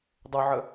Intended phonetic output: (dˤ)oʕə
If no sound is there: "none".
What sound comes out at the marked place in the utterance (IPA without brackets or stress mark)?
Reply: dˤ